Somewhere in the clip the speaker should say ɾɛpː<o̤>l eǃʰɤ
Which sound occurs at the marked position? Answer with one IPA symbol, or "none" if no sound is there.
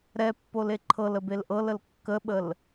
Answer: o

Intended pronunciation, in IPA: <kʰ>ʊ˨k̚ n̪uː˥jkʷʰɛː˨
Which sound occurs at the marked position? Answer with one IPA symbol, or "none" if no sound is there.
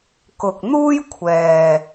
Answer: k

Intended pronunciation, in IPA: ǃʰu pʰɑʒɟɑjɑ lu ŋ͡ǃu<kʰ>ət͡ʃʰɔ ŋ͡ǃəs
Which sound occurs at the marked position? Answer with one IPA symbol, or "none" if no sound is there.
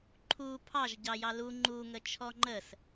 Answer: ŋ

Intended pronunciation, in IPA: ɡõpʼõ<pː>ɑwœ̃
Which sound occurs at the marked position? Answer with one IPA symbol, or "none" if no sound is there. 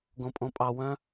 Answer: pʼ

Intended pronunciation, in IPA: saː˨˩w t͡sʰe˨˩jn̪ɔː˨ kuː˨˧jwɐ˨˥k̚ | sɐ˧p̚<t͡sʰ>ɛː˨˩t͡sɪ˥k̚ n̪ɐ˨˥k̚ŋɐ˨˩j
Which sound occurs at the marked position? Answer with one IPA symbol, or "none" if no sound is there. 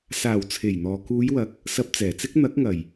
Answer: t͡s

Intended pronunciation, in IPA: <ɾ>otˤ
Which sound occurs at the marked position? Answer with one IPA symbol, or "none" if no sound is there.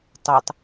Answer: tˤ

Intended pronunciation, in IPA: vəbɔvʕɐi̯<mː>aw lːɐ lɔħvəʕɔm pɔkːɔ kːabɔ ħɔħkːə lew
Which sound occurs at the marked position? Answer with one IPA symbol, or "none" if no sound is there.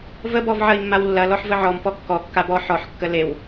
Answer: mː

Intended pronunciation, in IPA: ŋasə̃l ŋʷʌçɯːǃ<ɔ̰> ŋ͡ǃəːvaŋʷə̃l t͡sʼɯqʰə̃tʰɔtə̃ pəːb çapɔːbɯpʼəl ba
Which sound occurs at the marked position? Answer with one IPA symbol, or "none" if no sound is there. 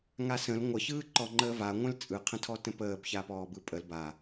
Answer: ɔ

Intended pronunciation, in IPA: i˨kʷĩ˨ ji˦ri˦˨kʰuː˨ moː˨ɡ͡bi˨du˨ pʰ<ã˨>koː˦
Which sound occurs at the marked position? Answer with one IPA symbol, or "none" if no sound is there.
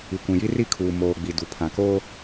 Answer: ã˨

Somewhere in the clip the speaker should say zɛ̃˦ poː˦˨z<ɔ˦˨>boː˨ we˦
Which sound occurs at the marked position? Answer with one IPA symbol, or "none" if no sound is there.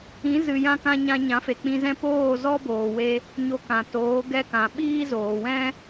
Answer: ɔ˦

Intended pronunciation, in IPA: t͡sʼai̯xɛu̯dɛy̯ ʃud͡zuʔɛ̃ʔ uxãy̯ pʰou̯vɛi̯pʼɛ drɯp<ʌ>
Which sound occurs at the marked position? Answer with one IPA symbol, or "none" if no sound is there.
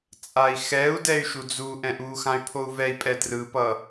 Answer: ʌ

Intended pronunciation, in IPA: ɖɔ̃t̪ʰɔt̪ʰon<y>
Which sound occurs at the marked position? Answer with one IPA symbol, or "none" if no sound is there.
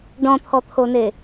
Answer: e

